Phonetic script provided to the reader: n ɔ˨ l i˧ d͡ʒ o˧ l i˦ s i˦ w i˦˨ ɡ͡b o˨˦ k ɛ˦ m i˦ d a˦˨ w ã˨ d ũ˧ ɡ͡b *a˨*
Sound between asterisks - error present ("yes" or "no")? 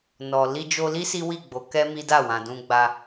yes